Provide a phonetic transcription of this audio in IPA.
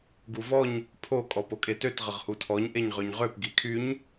ɡ u v ɔ ɲ | pʰ o kʼ ɔ p o kʼ e t ø t ʁ ə ʁ h u tʰ ɔ ɲ ʔ e ɲ ʁ ø ɲ ʁ ø p ɡ i kʰ y ɲ

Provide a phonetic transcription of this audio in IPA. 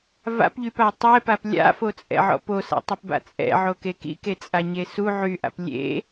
v a̰ p ʎ y p a tˤ ɛ p a p lʲ a̰ f o t͡sʼ ɛ̰ ʕ ɔ̰ p o s a̰ tˤ y p b a̰ t͡sʼ ɛ̰ ʕ o k e k ḭ k e t͡sʼ a ɲ e s u ʕ y ʔ a̰ p lʲ ḛ

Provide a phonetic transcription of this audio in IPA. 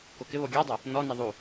k o k ɪ β o ɡʲ a dˤ ʊ | n ɔ n ɛ ðˤ u

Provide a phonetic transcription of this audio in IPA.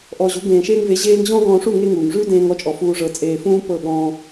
ʔ ɔ˧ ʑ u˨˦ ɡ ẽː˨ ʃ eː˧ ŋ v e˨˦ ʑ eː˧ ŋ ʑ ɔ̃˦ ɡ ɔ̃ː˧ ʂ u˦˨ ŋ e˧ ŋ uː˨ ŋ ʐ ʉ˦ d ẽː˧ ŋ ɔ˦˨ t͡ʃʼ ɔ˨ f uː˨ ʐ ɤ˨ t͡sʼ eː˧ f ũː˦ p ɤ˦˨ ɠ ɔ̃ː˧

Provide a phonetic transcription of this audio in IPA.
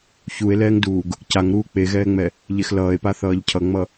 ç u e̯ l ɛː ŋ d uː ɡ | c a ŋ ɾ uː k͡p e ɣ ɛː ŋ͡m ɛ | ʎ e x l ʌː e̯ p a θ ʌː ʎ cʰ ʌ ŋ͡m ʌ

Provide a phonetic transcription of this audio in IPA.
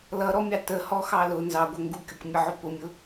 l ʌ ɾ ɔ mʲ ɑ t ə h ɔ x ɑ l ʊ n z ɑ ɡʷ ɛ ŋ ɡ u kʲ ʊ k mʲ ə ʕ ʊ p ʊ mʲ ʊ

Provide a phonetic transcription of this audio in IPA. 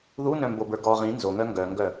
ð u n œ̃ m b o b ə˞ ɡ ɔ ʁ ĩ n z o ŋ œ ŋ ɡ œ ŋ ɡ œ

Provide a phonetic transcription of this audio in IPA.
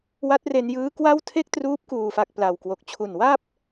w a˦˥ t̚ r e˧ n j ɯː˦˥ k w a˥˩ w tʰ e˥˩ k̚ t r uː˦˥ p̚ k uː˨˩ f a˨˩ k̚ p l a˨˩ w k w o˨˩ k̚ t͡ɕʰ u˨˩ n w a˥˩ p̚

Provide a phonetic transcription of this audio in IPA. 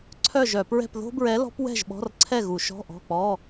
ǀʰ œ˥˨ ʒ œ˧˩˧ p ɹ ɛ̤˥˨ p ð o̤˥ b ɹ ɛ˧˥ l ɔ̤˧˥ p w ɛ̤˥˨ ʒ ɓ ɔ̤˧˥˧ r ǀʰ ɛ˥˨ ɣ u˧˩˧ ʃ ɔ̤˧˥˧ ʔ ɔ̤˧˥˧ k͡p ɔ˧˥˧

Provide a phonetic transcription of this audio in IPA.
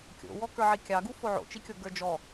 kʲ o̰ w ɔ k ə˞ ʕ i kʲ ɑ ɡ u f o ʕ o̰ t͡ʃ i kʲ o ɡ ə˞ d͡ʒ ɔ

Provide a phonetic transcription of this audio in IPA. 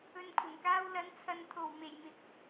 ɵ˨ n kʷʰ ɐ˨˩ n k aː˧ w l ɐ˨˧ n t͡sʰ ɐ˨ n t̪ʰ o˨˩ w m e˨˩ j m ɪ˨˥ k̚

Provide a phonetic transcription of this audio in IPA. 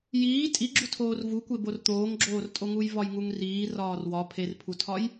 j iː tʼ i ɡ͡ǁ u tʰ oː r v u kʷ e b o r t̪ oː ŋ ɡ͡ǁ oː r tʼ o ŋ u j v ɒ j ŋ u ŋ r iː r ɒː r w ɒ pʰ e r pʰ u tʰ ɒ j

